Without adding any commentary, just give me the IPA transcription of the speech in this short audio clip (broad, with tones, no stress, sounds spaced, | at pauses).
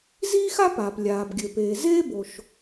z iː˥ x a˥ p aː˩ p lʲ aː˩ b ɡʲ ɘ˩ p eː˩ z eː˥ b o˩ ʃ